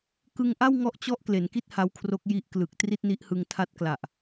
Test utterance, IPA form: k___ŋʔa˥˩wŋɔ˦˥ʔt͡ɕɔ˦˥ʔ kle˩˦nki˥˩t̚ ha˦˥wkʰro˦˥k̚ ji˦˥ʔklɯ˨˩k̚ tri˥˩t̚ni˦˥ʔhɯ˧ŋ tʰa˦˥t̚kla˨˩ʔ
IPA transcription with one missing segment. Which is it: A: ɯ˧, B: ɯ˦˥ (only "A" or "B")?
A